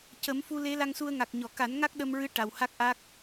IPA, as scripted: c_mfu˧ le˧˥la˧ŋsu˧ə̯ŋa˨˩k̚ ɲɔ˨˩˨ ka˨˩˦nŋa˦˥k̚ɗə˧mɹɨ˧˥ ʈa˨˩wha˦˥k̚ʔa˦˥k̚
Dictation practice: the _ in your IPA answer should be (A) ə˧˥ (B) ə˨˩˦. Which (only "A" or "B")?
B